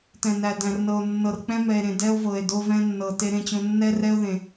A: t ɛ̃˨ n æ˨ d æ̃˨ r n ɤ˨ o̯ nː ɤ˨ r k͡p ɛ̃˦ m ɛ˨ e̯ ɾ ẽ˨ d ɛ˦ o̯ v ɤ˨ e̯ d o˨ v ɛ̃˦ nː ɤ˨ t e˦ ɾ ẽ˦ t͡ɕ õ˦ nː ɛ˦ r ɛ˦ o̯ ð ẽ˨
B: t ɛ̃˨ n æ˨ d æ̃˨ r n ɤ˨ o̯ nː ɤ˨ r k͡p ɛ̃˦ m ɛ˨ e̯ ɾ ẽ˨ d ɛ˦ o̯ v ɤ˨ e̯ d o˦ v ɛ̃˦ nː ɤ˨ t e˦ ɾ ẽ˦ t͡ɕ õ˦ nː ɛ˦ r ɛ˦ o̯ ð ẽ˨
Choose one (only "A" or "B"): B